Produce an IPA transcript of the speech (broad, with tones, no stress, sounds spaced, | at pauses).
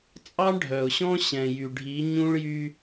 t͡sʼ ɑ˦ ɳ ɖʱ œ˨ ʊ̯ ɕ ɔ̃˦ ɕ ɛ̃˨ j y˨ ɖʱ i˨˦ ɲ ũ˦ ɭ j y˦